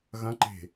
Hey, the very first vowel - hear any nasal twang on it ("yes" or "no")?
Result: yes